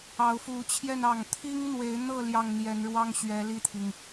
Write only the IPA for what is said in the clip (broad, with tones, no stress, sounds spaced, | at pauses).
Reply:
ɑ˧˥ ʊ̯ f u˧˥ t͡ɕʰ j ɛ˥˧ n ɑ˥˩ ŋ t̪ʰ i˥ ŋ n̪ w e˧˥ ɪ̯ n̪ ɤ˥˧ l j ɑ˥˩ ŋ n̪ j ɛ˧˥ n ɻ w ɑ˥ ŋ ɕ ɥ ɛ˧˥ l i˥˩ t̪ʰ i˩ ŋ